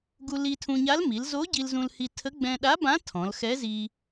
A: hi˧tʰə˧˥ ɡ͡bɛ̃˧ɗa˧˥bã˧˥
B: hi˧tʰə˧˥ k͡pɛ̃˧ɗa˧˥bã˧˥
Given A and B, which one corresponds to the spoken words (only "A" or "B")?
A